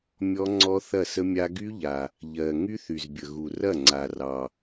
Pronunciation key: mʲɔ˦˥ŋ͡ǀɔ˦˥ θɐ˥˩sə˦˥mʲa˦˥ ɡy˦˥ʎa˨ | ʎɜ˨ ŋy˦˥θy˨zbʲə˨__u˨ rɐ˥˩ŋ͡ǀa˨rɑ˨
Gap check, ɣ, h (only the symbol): ɣ